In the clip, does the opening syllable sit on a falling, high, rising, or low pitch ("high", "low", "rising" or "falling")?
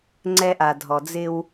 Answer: high